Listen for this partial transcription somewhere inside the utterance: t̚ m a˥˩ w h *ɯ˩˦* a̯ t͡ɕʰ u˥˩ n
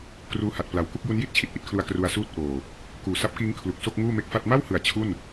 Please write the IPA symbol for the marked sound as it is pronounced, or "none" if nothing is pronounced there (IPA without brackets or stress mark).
ɯ˩˦